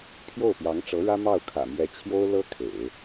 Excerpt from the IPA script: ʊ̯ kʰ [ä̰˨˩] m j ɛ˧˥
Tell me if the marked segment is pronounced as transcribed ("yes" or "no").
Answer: yes